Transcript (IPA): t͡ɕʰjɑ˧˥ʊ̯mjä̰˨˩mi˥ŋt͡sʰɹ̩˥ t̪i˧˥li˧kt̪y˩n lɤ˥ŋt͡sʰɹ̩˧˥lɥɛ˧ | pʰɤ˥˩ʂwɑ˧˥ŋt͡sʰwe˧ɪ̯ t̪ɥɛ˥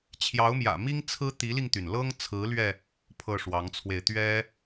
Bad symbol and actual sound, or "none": k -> ŋ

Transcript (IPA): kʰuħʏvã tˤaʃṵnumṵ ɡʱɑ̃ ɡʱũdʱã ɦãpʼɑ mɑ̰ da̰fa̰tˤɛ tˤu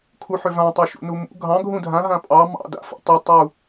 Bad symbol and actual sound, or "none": none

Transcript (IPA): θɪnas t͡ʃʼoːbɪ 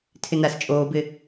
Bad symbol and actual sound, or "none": θ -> tʰ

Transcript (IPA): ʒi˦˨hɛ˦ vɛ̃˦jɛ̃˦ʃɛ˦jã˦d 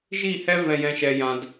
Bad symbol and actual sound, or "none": none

